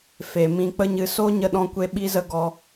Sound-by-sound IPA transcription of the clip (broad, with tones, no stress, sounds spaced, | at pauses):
f e˨ m ĩ˧ k͡p ə˦ ɲ ɨ˧ s o˦ ɲ ə˧ ɗ ɔ̃˦ kʷ e˦ ɓ i˦ z ə˦ ɡ ɔ˧